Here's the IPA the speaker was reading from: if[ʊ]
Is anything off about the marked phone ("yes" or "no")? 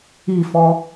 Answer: yes